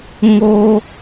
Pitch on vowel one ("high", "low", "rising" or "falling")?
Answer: high